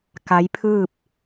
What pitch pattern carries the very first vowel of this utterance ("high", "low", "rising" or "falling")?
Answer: rising